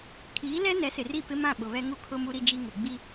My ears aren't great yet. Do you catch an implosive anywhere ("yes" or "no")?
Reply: yes